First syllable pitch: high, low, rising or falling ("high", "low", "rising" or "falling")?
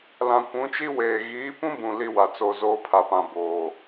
low